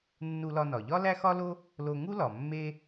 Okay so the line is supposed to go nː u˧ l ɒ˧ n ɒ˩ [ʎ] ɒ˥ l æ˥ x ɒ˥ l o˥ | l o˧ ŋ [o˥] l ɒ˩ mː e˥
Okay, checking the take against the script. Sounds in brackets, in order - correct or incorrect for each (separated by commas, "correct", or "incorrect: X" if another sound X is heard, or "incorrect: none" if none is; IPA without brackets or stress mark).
correct, incorrect: u˥